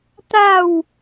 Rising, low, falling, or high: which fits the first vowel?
falling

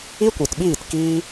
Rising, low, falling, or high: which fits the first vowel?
high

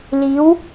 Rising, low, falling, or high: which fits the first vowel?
rising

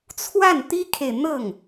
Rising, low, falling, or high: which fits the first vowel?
falling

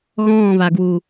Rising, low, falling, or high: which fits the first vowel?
falling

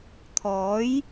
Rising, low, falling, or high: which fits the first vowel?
rising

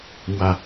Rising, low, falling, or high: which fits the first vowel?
falling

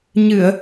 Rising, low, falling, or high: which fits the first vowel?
low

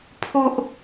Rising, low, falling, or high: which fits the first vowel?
high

